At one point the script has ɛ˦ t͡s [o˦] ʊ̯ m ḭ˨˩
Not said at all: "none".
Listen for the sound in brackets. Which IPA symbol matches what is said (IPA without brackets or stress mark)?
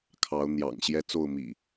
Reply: o˥˨